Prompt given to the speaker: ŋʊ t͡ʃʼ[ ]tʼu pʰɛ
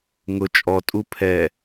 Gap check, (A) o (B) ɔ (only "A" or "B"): B